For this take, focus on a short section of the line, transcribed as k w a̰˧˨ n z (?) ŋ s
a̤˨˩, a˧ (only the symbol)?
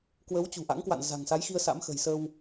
a̤˨˩